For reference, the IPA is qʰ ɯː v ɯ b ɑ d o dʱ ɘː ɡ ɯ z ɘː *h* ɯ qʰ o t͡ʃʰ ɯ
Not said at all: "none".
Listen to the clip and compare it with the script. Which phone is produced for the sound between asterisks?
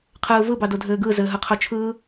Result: ɦ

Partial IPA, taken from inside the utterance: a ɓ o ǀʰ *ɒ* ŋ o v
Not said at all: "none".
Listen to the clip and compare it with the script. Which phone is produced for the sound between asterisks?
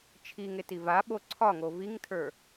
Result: ɒ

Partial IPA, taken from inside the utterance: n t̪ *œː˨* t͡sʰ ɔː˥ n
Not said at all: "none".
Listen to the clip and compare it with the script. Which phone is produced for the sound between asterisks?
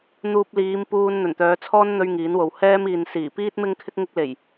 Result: œː˨˧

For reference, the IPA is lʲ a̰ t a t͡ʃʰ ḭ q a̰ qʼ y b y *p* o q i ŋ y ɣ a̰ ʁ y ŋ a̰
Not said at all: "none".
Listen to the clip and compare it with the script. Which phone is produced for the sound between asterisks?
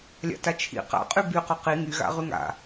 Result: q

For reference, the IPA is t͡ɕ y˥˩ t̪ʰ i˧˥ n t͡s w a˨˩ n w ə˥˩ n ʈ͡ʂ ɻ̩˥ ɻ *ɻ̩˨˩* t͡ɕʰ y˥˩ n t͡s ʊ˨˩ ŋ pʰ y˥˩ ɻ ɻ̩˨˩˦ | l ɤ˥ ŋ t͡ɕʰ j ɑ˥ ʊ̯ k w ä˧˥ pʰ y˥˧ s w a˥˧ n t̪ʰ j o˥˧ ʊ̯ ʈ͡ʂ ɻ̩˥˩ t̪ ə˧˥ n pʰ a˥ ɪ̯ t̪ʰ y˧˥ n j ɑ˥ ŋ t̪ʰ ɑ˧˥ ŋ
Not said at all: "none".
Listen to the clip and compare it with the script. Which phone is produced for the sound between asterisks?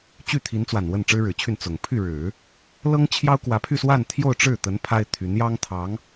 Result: ɻ̩˨˩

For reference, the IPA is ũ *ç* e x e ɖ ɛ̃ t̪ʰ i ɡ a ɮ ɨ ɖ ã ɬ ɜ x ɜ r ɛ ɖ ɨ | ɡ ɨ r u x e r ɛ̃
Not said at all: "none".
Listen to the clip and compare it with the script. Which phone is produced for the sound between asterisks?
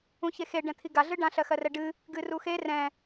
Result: ç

